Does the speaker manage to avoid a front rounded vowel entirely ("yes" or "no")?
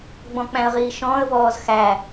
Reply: yes